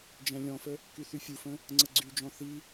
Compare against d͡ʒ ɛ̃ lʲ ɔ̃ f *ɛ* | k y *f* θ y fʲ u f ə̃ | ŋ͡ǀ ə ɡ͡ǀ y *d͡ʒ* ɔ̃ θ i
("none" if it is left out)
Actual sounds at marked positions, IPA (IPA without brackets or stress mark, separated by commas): ə, none, d͡ʒ